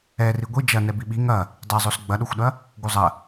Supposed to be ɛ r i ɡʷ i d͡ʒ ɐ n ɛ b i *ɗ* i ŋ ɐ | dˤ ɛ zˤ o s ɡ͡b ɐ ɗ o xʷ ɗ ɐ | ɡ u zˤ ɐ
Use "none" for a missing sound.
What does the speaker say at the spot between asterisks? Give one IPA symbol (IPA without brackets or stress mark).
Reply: ɓ